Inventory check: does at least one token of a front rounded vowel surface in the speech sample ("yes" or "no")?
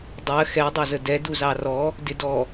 no